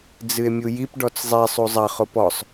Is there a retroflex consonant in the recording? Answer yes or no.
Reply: yes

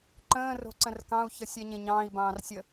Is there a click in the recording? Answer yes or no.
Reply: yes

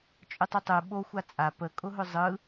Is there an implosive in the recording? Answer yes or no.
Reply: yes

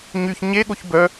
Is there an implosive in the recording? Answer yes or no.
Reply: yes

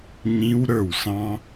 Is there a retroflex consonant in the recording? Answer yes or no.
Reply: no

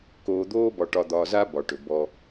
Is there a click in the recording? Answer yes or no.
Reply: no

